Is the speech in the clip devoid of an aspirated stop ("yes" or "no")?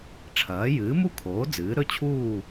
no